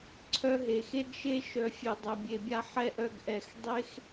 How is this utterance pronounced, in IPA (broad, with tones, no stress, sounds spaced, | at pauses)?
ǀʰ œ˧ ɦ e˩ x e˥ ɡ ʃ e˥ ʃ œ˧ fʲ e˧ dˤ œ˧ bʲ e˧ bʲ a˥ ħ ɛ˥ ʔ œ˥ ɡ ʔ ɛ˧ x dˤ e˥ x